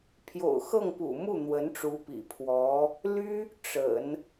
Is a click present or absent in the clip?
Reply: absent